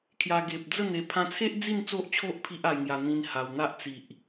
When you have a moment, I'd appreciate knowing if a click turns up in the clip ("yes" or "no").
no